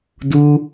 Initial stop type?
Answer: plain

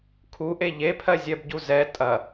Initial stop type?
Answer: aspirated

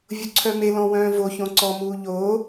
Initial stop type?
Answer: click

